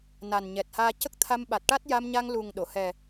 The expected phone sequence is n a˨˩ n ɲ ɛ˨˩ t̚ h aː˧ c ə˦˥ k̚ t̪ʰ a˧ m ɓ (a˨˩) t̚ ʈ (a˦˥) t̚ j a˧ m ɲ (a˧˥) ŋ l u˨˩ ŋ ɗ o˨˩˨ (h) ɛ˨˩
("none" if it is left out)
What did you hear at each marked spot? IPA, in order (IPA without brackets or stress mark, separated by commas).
a˨˩, a˦˥, a˧, h